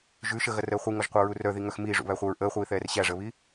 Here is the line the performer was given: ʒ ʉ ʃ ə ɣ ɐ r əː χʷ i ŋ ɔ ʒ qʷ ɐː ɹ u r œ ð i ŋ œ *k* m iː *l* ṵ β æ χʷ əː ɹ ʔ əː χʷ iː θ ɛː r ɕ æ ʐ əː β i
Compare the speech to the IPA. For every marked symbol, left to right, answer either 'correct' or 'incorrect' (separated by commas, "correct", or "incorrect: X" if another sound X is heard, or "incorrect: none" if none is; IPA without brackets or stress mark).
incorrect: x, incorrect: ʐ